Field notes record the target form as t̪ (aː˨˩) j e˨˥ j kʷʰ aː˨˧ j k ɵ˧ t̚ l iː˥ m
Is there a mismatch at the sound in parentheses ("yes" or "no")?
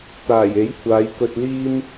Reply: no